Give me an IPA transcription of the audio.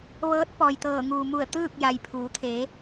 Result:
ʋɤː˧˥t̚ pɔː˩jt̪ɤː˧˩ ŋuː˩mu˧˩ə̯ t̪ɯː˥˨k̚ja˩jpʰuː˩˧t̪ʰe˩˧

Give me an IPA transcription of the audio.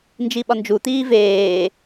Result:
nd͡ʒiɓɒnd͡ʒu t̪iːveː

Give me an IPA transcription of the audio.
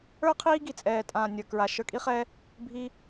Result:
ə˞˦ qʰiː˦ɡi˨t͡sʼɛː˨tʼãː˨ nʲə˞˨kɹa˨ ʃə˞˧kʼi˦χɛ˦ | bʱi˦

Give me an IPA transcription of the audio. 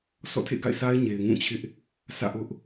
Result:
sɔ̰˦˨tʰḛ˦˨ɡa̰˦˨ɪ̯sa˦ɪ̯ ɲe˨ɪ̯ŋũ˦˨t͡ɕʰɪ˦ʔ | sä̰˦˨ʔʊ˦ʔ

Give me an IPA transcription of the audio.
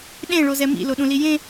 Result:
ɗẽ ɭozɛmḭ loɗũlijẽ

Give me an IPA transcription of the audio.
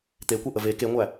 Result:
t̪ekʷeʔə ve keŋʷæ

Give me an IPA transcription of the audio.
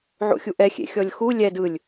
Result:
ʕo̰xʲuʔɛ xʲḛxʲɔlʲxu lʲɛd ɯlʲ

